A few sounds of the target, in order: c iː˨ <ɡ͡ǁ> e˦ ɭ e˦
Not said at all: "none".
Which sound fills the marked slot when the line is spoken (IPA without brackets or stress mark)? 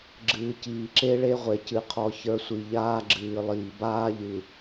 ǁ